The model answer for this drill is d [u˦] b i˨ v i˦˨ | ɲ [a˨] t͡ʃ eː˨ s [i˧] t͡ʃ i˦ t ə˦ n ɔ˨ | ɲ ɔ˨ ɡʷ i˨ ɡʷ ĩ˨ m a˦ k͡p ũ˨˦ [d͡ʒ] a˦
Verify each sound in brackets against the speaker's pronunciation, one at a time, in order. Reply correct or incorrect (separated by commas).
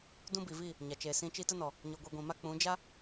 incorrect, correct, incorrect, correct